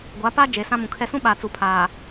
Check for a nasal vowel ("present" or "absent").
present